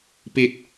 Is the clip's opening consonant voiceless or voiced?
voiceless